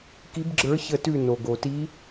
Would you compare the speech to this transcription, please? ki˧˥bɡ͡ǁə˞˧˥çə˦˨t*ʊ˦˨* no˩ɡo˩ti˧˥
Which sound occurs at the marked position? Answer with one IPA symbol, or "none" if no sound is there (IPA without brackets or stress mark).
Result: ʉ˦˨